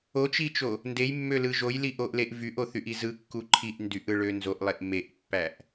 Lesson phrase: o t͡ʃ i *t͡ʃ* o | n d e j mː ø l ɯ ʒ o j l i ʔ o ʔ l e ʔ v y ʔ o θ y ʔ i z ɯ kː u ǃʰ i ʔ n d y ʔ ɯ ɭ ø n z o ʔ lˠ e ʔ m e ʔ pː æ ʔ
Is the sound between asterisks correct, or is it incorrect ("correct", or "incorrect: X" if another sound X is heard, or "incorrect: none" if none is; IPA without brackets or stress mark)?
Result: correct